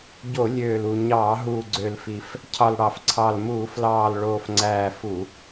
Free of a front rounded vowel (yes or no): no